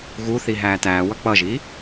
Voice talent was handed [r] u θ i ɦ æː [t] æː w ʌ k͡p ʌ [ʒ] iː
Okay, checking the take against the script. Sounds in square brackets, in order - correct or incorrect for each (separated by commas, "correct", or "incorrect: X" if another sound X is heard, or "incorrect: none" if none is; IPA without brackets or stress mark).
incorrect: ɣ, correct, correct